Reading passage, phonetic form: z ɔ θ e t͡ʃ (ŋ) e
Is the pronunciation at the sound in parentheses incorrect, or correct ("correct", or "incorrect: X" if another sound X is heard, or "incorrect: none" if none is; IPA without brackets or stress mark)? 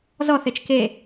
incorrect: k